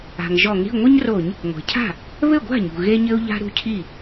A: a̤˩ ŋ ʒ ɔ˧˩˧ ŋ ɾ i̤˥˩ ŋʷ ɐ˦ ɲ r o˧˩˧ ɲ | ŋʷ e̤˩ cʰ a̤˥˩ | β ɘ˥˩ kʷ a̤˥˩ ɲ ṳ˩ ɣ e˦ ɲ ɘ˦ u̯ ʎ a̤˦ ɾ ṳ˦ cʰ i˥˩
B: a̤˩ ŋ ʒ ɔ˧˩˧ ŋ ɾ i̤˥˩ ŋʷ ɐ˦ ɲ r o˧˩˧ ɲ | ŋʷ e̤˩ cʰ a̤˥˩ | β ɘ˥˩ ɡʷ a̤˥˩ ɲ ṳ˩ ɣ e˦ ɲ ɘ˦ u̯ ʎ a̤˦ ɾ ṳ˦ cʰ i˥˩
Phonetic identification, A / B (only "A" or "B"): B